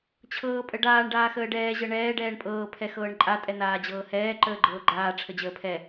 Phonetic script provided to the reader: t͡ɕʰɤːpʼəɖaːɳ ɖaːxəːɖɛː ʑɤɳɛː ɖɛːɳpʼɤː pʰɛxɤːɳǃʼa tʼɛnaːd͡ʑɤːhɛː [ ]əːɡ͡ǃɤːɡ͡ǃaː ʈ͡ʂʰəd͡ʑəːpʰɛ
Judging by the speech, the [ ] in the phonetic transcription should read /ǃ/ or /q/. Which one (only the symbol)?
ǃ